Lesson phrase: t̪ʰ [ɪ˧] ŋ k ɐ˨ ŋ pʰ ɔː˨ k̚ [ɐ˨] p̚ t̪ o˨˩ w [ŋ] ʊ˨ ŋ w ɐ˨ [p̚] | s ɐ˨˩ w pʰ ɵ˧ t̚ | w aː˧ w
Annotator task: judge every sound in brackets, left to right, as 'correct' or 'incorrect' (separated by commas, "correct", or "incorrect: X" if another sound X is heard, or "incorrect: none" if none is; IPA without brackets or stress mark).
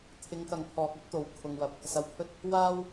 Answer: incorrect: ɪ˨˧, incorrect: ɐ˥, incorrect: kʰ, correct